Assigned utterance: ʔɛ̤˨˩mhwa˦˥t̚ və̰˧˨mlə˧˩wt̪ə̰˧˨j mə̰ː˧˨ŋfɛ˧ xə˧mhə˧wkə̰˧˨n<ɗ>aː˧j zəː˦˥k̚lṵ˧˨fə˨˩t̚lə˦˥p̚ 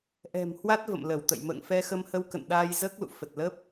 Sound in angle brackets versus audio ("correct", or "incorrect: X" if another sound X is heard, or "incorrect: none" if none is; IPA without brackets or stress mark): correct